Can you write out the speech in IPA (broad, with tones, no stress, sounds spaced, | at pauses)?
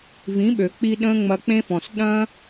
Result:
v ĩ˨˦ ɓ ø˨ k͡p i˧ ɗ ə̃ː˦ ŋ͡m ɐ˧ k͡p ẽ˦ f ɔ̃˨ s ɗ ɐ̃˦